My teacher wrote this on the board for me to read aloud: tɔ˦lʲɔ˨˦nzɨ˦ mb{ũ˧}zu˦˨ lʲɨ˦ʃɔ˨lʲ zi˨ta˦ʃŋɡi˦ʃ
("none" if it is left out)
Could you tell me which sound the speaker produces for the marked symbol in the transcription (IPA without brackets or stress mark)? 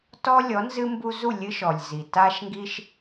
u˧